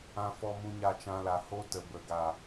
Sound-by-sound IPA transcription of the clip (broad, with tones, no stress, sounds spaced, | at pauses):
ã˦ f ɔ˦ m ũ˦ ɲ a˦˨ t͡ʃ ã˧ l a˨ h o˦ t ə˨ b ə˨ ɡ a˨